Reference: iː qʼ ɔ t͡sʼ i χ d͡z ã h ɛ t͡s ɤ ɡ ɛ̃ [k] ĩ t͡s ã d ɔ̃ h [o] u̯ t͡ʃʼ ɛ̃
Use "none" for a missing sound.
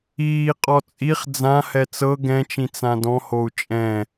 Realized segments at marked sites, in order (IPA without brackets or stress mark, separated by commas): t͡ʃ, o